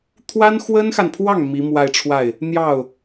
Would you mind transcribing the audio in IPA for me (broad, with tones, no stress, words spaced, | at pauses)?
t̪ʰwa˥nxwə˥nxa˨npʰwɑ˥˩ŋ mi˧˥mwa˥˧ɪ̯ʈ͡ʂʰwa˥˩ɪ̯ | n̪jɑ˥˩ʊ̯